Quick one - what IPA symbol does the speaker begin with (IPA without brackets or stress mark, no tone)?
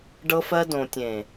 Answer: ɖ